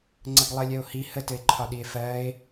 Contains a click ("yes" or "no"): yes